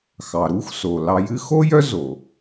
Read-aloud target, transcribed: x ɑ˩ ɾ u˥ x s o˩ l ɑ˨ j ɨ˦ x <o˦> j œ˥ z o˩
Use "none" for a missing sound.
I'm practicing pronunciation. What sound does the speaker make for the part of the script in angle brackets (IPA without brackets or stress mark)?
o˥